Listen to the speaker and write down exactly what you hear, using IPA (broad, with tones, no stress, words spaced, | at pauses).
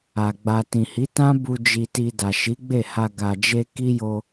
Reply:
a˨ ɡ͡ba˨ tĩ˨hi˨˦tã˦ bu˧ d͡ʒi˨ti˨ da˨ʃi˨˦ɡ͡be˦˨ha˧ ɡa˨d͡ʒe˧ ki˦jo˧